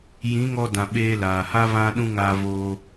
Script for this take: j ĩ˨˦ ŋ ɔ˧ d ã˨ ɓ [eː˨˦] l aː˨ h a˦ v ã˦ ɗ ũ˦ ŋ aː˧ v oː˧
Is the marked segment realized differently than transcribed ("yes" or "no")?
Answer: yes